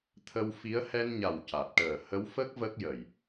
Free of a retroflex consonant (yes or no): no